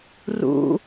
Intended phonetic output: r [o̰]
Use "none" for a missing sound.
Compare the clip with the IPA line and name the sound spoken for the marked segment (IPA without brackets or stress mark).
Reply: ṵ